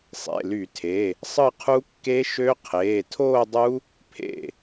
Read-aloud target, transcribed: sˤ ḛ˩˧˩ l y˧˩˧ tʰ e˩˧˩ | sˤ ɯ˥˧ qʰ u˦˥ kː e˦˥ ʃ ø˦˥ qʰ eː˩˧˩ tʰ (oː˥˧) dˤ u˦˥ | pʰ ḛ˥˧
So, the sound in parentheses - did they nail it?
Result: yes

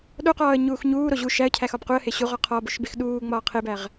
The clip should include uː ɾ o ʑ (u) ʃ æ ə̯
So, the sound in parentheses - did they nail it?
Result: yes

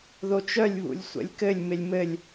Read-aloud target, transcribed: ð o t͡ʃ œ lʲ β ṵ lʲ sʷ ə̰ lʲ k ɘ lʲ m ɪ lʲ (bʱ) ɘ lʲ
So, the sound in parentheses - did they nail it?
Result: no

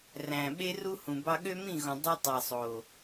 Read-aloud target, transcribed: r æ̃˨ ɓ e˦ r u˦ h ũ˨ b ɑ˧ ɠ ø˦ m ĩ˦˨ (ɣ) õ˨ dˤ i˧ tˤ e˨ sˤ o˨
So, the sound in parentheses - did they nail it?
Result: yes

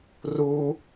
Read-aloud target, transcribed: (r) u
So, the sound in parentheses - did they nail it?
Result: yes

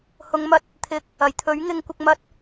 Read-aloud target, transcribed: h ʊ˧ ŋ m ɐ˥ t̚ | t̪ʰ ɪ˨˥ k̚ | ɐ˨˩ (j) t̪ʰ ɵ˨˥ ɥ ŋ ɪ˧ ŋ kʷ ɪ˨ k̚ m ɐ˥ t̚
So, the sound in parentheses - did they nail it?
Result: yes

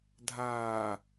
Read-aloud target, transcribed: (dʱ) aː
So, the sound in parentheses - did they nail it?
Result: yes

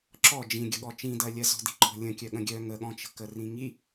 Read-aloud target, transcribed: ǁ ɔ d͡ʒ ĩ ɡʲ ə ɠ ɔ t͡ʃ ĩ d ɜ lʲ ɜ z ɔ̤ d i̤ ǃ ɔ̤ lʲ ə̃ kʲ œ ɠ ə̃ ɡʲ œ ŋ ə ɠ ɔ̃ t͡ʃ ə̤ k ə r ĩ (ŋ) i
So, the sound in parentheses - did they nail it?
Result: yes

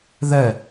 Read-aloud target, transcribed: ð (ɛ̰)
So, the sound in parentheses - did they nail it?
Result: no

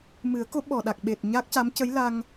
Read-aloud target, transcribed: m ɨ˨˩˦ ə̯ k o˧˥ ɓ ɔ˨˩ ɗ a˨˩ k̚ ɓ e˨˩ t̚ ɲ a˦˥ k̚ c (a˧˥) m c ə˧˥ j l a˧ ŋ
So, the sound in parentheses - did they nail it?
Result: yes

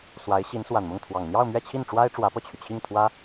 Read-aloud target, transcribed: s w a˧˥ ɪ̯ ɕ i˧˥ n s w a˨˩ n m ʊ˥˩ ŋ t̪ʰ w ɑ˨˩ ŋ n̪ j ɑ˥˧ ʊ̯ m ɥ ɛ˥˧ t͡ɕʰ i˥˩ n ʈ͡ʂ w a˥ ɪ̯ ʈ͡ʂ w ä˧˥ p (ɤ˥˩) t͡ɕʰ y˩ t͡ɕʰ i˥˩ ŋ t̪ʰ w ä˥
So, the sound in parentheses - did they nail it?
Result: yes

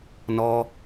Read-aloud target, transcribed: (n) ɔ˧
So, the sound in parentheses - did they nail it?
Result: yes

